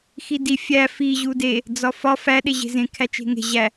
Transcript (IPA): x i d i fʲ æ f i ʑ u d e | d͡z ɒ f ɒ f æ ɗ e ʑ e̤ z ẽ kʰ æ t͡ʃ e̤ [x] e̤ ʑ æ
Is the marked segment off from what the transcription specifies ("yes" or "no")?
yes